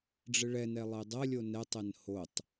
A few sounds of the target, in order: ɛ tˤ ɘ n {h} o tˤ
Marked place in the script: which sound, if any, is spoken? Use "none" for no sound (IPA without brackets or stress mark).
h